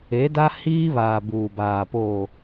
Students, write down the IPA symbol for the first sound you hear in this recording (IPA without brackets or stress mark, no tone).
e